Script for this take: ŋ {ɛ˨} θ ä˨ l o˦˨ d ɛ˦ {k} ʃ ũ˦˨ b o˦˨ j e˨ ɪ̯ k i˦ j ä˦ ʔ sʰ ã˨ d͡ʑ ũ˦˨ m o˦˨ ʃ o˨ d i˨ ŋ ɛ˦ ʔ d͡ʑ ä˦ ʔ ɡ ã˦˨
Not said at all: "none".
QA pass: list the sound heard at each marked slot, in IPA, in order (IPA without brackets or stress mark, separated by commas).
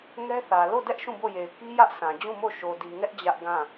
ɛ˦, ʔ